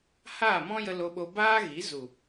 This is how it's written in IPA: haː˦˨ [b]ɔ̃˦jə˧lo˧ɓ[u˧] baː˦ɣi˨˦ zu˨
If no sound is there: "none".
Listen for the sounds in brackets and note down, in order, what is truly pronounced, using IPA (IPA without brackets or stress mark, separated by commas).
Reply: m, o˧